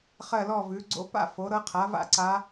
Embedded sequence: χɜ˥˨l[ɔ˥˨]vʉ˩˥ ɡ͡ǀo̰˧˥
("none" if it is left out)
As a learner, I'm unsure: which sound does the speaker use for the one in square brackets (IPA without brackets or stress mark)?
ɔ˥˨